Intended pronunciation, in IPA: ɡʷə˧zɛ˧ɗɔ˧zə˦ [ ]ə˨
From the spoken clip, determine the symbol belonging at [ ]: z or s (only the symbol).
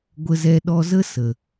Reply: s